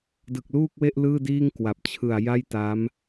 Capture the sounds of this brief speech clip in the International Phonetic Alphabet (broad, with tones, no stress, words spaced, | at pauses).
dɯ˨˩k̚luː˥˩k̚we˥˩ʔ lɯː˥˩diː˥˩ŋ kwa˨˩p̚ t͡ɕʰɯ˨˩a̯ja˥˩jta˦˥m